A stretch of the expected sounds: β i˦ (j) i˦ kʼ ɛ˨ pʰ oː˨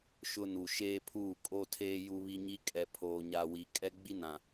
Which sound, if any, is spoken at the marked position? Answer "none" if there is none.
ɲ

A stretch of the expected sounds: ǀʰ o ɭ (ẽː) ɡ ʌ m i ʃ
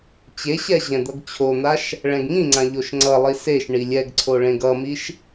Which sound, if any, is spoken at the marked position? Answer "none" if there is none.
ẽ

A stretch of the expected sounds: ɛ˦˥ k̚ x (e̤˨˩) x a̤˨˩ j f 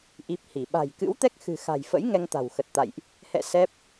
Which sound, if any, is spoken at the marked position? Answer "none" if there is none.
ɨ̤˨˩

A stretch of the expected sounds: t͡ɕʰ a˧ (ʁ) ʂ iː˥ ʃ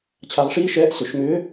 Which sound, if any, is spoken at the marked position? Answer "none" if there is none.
ʁ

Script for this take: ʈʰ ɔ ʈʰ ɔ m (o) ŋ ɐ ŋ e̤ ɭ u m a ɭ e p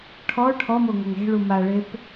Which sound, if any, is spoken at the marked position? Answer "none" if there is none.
o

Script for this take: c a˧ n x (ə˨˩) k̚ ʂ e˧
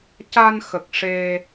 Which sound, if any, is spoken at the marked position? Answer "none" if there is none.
ə˨˩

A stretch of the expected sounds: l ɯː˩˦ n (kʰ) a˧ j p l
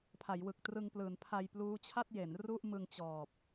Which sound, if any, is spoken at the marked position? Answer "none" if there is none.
pʰ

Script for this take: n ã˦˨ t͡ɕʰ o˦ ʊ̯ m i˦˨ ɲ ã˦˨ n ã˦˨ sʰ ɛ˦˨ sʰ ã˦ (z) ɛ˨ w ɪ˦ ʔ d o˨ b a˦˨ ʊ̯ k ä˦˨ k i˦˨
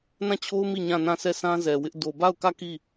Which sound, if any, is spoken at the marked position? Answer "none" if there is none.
z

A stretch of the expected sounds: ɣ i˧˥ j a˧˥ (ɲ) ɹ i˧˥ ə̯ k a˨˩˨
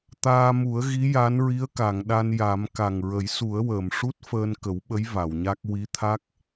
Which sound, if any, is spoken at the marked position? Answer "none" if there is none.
n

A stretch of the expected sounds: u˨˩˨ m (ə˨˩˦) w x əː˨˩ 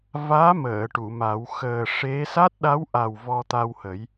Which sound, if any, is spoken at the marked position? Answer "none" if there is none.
a˨˩˦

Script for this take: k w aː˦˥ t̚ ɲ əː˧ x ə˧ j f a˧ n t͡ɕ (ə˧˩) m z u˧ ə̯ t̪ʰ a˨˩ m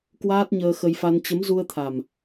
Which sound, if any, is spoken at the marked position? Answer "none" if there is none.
ə˨˦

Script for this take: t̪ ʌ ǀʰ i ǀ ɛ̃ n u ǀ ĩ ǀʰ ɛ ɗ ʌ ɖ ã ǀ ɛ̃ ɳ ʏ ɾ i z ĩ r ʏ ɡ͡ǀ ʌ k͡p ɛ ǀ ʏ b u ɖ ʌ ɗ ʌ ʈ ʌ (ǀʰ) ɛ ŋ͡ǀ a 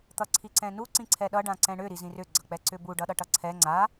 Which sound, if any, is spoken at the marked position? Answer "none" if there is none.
ǀʰ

